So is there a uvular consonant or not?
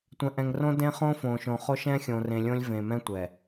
yes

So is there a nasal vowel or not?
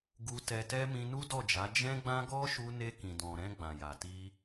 yes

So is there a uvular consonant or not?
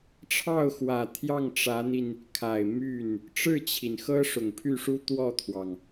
no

